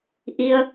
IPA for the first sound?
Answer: ʔ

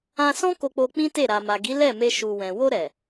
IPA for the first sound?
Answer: ã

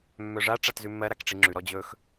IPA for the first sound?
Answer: mː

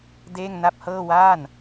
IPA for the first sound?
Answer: d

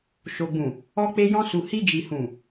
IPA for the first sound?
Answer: ʃ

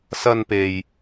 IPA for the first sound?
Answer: s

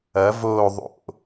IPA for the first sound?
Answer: ɐ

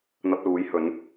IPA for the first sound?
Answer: n̪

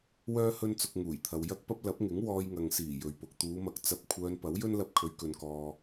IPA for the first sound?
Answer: w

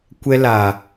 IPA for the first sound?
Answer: kʷ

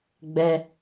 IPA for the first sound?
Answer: ɡ͡b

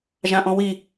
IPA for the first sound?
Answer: ʒ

